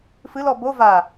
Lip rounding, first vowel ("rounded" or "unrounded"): unrounded